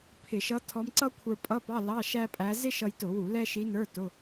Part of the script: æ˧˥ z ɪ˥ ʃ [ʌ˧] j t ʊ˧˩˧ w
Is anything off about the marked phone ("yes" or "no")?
no